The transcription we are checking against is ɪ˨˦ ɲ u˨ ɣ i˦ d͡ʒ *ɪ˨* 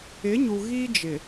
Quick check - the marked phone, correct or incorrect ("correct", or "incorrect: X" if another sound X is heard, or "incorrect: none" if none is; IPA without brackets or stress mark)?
correct